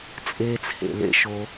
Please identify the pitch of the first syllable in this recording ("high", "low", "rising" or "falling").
high